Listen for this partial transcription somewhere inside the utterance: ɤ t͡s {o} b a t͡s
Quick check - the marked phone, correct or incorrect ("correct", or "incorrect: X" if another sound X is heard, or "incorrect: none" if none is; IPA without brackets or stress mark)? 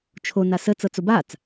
correct